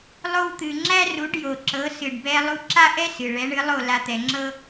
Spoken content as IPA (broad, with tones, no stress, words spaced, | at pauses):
lˠo˧wt̪ɨ˩ ŋ͡ǁæ˥ru˩˥ɖ jo˩ǁɤ˩˥ sɨ˩ɖbɛ˧ lˠu˧ǁa˥ʔɛ˥sɨ˩ ɭɛ˩˥ɳɨ˩˥lˠo˥˩ la˧t̪ɛ˩ŋ͡ǁɤ˥